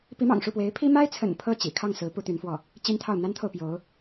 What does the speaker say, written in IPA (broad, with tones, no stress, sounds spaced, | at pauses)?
p i˧˥ m ɑ̰˨˩ ŋ ʂ u˥˩ p w e˧˥ ɪ̯ pʰ i˥ m a˥ ɪ̯ t͡sʰ ə̰˨˩ n pʰ ɤ˥˩ t͡ɕ ḭ˨˩ kʰ ɑ˥˩ ŋ s ɹ̩˧˥ p u˥ t̪ y˧˥ n f w ɔ˥˩ | t͡ɕ i˥ n t̪ʰ ɑ˥˩ ʊ̯ n̪ a˥ n t̪ʰ o˨ ʊ̯ p j o˧˥ ʊ̯